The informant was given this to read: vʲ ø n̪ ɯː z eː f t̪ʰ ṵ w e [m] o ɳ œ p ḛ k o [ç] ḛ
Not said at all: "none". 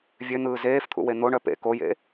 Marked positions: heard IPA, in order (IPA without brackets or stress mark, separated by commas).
n̪, j